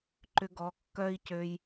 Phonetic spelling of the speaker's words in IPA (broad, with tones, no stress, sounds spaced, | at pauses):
ǃ ʏ˧ ɡ ɔ˨˦ kː œ˦ i̯ c ø˧ j